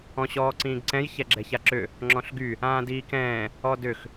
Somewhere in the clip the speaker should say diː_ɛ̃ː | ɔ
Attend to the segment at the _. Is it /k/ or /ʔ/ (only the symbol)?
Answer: k